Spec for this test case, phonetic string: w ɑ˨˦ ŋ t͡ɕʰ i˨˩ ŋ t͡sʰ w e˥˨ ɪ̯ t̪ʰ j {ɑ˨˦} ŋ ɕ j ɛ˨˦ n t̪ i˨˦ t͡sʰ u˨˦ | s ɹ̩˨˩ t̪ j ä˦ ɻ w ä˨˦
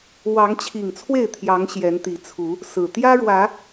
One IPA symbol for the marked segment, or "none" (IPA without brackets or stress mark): ɑ˨˦